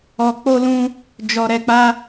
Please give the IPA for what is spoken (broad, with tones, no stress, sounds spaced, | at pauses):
ɔ˧ k͡p o˦ l ũ˦ | d͡ʒ ɔ˧ ɾ ɛ˧ k͡p a˦